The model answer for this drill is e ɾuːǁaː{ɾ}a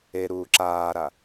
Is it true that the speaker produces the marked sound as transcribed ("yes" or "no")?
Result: yes